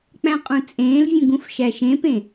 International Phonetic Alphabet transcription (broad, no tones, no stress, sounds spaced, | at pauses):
k͡p æ̃ qʼ ũ t͡sʼ ẽː l vʲ ũ ɡ ũ f ʃ æ ʃ ẽ p ẽ